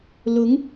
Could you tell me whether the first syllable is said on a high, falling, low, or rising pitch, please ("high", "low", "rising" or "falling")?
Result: rising